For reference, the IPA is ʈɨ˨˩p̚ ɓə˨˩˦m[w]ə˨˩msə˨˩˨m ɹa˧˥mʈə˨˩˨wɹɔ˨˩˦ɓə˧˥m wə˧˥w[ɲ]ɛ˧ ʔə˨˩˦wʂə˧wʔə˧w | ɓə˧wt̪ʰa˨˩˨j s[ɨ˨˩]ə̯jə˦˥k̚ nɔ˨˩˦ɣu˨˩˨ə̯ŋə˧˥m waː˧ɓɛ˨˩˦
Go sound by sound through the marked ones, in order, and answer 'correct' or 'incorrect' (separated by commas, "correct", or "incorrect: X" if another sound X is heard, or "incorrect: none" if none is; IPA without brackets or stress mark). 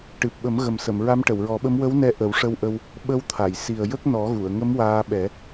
incorrect: ɣ, incorrect: n, incorrect: i˨˩